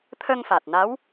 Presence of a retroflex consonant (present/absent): absent